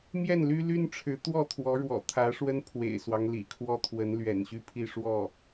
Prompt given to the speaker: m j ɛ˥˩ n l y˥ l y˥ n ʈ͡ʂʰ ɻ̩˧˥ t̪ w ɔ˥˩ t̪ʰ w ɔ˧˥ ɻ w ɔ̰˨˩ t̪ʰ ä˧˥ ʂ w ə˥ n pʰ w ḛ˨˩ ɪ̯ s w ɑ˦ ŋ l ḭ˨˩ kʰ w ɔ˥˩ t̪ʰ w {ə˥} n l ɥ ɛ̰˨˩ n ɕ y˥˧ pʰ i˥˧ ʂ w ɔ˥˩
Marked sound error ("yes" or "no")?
yes